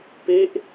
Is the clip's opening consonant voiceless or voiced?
voiceless